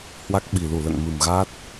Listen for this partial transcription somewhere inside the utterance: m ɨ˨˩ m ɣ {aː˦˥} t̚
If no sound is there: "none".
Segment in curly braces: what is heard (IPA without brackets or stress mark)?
aː˦˥